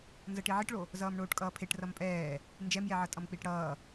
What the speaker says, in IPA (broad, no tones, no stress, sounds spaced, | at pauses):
n z ʌ ʈ i ʕ i ʈ ɭ o | z ʌː m ɳ oː ʈ kʼ ʌː pʰ e ʈ r ʌ m pʼ ɛː | n d͡ʒ ɛ m j ɛ ʕ ʌ tʼ ʌ m k͡p i ʈ ɽ ʌː